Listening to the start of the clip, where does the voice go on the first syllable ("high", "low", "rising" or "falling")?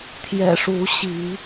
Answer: low